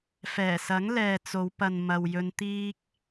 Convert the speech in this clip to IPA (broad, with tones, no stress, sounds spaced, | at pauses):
f ɛː˨˩ s ɐ˨˥ ŋ l ɛː˨ t͡s o˨˧ w p ɐ˨ n m ɐ˨ w j ɵ˧ n t̪ iː˥ k̚